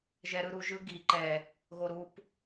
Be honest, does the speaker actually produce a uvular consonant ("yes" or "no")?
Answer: no